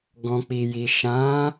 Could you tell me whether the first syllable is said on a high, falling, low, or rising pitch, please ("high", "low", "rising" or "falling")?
low